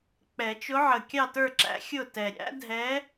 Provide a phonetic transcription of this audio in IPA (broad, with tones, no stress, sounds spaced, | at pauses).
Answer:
k͡p ɛ˨˩˦ t͡ʃ ʊ˧˥ ʕ ə˨˩ kʲ ɑ˥˨ t ə˞˥˨ ǁ æ̰˧˥ xʲ ʊ˥˨ t ɛ˨˩ ɾʲ æ̰˧˥ dʱ ɛ˧˥